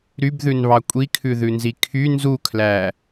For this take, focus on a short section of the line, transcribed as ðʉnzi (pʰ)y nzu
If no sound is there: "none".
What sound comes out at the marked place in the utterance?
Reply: kʰ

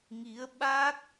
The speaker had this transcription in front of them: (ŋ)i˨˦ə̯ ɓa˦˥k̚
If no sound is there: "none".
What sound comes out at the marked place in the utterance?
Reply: ŋ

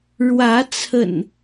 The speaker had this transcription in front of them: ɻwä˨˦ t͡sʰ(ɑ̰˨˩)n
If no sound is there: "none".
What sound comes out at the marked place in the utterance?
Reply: ə̰˨˩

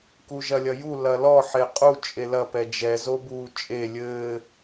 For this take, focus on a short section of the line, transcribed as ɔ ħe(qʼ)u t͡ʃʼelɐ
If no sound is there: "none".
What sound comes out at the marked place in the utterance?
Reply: qʼ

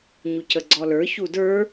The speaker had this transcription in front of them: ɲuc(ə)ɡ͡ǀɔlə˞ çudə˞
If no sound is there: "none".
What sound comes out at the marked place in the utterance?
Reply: ə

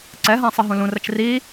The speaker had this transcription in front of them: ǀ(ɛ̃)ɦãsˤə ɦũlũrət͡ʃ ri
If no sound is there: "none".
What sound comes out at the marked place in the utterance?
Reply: ɛ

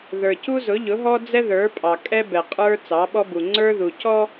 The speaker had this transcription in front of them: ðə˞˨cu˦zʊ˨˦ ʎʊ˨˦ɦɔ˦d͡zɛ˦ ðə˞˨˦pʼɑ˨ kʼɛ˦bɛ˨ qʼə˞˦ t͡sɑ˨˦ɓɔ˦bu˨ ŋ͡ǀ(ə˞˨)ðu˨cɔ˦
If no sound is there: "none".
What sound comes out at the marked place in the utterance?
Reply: ə˞˦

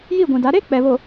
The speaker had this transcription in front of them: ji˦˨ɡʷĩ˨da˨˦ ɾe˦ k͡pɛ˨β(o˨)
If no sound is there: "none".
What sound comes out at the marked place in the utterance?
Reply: o˨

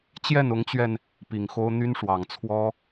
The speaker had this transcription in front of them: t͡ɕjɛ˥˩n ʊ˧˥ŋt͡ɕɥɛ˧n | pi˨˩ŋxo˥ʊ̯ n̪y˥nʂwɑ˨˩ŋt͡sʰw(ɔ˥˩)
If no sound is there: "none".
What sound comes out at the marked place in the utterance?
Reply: ɔ˥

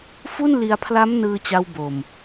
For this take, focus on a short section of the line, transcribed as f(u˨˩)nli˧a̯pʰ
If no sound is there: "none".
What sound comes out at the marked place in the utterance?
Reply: u˥˩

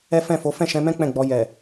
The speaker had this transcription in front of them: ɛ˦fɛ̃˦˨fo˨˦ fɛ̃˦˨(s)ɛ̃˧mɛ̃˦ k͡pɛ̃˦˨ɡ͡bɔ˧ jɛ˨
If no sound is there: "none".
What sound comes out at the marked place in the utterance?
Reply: ʃ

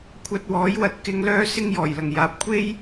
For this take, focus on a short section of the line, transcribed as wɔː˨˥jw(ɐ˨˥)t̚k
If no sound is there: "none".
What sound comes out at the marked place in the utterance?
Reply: ɐ˧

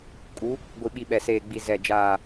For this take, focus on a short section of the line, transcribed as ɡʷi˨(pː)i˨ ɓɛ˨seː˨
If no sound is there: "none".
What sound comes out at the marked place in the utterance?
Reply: ɓ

